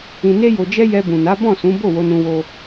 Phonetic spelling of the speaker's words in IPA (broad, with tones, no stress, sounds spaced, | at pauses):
ĩ˧ n e˦ j o˧ d͡ʒ ɛ˦ j ɛ˧ b ũ˨ n a˨˦ b ɔ̃˦˨ s ũ˨˦ b o˦˨ w o˧ n ũ˧ w o˧